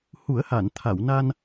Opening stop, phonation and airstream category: aspirated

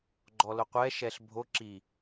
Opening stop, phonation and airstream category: click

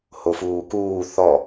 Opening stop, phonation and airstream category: plain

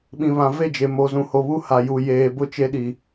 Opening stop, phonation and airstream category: implosive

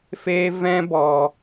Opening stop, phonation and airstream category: plain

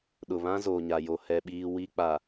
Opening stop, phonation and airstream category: implosive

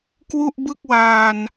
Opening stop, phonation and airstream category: plain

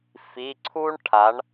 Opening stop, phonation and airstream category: click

